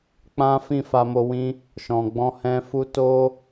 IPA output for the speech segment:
k͡p ã˦ f ĩ˦˨ f a˧ m o˧ w ĩ˦ | ʃ ɔ̃˨ ɡ͡b ɔ̃˧ h ɛ̃˧ f u˦ t o˦

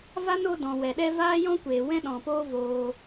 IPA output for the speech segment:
v a˦ n o˧ d ɔ̃˨ w ɛ˨ ɗ ɛ˦ v aː˦ j ɔ̃˦ kʷ eː˨ w ɛ̃˦ ɗ ɔ̃˨ p oː˦ v oː˧

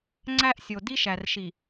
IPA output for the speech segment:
ŋ͡ǀ æ˦ ʔ sʲ o˨ d i˦ ʃ æ˨ r ʃ i˨

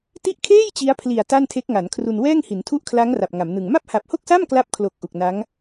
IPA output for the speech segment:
t i˦˥ ʔ kʰ eː˥˩ j t͡ɕ i˦˥ a̯ pʰ l i˨˩ a̯ t a˥˩ n tʰ e˦˥ k̚ ŋ a˩˦ n kʰ r u˧ n w ɛː˥˩ ŋ h i˩˦ n tʰ u˥˩ ʔ kʰ l a˦˥ ŋ r a˨˩ p̚ ŋ a˩˦ m n ɯ˨˩ ŋ m a˥˩ p̚ h a˨˩ p̚ h o˥˩ k̚ s a˥˩ m k l a˥˩ p̚ kʰ l o˨˩ k̚ ʔ u˨˩ k̚ n a˦˥ ŋ

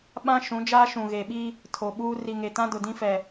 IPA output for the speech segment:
ɓ ã˦ ʃ ũ˨˦ d͡ʒ aː˦ ʃ ũ˨ ɣ e˨ ɓ i˦ | tʰ o˨ ɓ uː˦ r i˨ ŋ e˨ t ã˦ d ʊ˨ d ĩ˦ f ɛ˨

